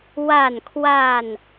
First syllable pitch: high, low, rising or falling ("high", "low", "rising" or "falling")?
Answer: falling